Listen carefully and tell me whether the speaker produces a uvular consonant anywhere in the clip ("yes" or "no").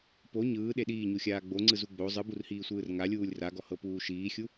no